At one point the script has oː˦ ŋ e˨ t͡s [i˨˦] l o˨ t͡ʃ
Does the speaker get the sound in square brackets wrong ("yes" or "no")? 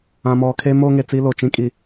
yes